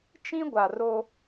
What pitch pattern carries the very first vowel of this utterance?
high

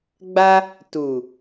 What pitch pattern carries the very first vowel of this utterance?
high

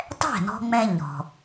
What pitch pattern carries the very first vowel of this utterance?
falling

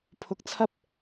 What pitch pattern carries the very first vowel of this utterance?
rising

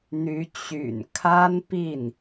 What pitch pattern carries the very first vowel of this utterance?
rising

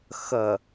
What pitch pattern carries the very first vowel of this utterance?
low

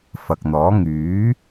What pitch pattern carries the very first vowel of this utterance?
low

